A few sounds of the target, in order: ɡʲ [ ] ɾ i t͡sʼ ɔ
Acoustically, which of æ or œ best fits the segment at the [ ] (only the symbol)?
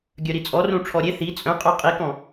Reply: œ